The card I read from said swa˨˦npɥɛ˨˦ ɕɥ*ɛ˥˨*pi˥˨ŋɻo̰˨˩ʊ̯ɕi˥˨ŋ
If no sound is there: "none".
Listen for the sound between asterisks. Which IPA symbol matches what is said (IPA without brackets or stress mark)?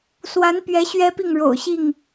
ɛ˦